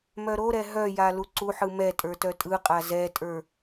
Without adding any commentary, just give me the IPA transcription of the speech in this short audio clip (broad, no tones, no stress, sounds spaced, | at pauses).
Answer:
m œ ɾ o ɾ ɛ ɦ œ j a l u ǀ u ħ ɯ m ɛ tʼ ə˞ t œ tʼ ɯ qʼ a z ɛ tʼ ə˞